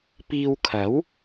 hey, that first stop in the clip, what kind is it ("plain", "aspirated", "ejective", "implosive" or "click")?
plain